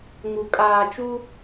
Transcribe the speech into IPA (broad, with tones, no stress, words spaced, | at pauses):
ŋu˨ kʼaː˨t͡ʃu˦